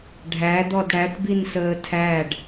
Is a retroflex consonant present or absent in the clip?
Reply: present